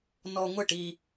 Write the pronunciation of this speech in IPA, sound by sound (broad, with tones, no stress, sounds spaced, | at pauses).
n ɔ˧ ŋʷ ɪ˦˨ ʈ i˧